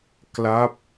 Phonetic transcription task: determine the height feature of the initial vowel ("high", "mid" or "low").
low